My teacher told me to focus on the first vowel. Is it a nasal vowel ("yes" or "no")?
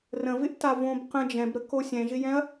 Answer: yes